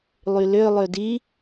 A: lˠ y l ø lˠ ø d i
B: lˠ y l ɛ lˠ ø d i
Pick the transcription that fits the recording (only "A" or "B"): A